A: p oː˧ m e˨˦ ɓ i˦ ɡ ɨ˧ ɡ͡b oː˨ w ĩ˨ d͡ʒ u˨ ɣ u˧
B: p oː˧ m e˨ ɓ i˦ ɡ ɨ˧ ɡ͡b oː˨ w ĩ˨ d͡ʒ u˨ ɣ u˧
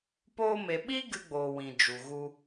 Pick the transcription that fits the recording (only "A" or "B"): B